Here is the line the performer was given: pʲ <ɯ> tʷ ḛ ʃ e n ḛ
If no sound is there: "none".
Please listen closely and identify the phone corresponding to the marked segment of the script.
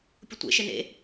ʊ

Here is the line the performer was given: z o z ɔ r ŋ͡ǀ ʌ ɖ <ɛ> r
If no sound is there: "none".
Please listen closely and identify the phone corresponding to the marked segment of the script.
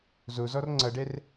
ɛ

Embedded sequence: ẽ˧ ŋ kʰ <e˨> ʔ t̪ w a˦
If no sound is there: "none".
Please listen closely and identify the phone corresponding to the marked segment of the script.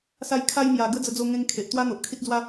e˨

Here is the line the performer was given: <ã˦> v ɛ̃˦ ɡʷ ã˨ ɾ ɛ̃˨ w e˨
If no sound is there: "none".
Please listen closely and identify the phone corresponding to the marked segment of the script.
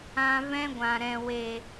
ã˧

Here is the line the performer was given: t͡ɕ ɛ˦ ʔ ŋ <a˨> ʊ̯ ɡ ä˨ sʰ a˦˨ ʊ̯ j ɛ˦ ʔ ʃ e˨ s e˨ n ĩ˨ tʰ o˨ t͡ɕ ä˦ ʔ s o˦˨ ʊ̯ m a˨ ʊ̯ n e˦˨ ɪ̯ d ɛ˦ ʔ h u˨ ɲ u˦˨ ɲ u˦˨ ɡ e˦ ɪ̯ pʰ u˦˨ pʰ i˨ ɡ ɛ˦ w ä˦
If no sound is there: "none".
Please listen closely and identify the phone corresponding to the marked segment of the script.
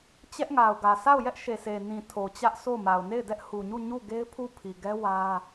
a˨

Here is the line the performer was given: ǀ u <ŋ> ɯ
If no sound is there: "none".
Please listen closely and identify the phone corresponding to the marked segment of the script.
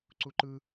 ǃ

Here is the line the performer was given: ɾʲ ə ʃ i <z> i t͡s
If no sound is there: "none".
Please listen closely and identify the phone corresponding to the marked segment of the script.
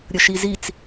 z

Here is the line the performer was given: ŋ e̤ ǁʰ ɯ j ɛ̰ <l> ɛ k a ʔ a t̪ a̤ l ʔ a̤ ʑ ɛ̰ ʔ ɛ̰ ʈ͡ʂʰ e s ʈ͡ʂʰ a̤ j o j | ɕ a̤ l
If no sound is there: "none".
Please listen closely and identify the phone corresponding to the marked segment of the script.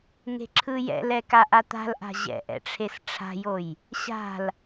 l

